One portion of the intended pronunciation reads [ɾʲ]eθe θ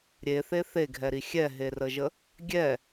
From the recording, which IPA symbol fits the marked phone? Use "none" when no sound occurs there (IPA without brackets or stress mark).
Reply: ɾʲ